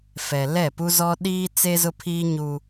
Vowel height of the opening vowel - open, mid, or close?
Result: mid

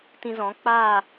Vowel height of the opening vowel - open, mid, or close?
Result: close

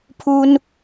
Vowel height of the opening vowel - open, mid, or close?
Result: close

